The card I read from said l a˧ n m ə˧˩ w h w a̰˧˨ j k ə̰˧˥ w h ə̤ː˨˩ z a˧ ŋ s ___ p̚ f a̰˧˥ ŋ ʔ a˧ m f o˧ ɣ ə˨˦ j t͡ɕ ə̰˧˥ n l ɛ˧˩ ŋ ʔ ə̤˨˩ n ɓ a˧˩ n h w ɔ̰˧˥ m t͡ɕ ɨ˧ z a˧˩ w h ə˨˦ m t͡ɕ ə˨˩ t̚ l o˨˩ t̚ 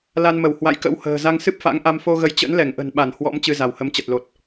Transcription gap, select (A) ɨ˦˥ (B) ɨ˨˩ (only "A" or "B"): A